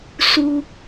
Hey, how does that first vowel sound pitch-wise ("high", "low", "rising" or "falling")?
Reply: low